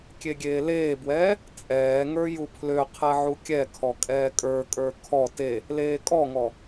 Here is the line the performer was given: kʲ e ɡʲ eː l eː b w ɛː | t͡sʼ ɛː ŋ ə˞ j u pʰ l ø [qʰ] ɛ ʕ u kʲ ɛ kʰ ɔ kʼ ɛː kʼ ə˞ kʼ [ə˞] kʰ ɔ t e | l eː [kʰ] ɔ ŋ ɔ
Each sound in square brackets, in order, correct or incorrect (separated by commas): correct, correct, incorrect